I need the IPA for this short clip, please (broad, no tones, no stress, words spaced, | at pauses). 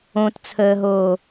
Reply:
õtt͡sʰəːɦoː